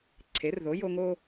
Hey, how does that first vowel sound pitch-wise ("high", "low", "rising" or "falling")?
rising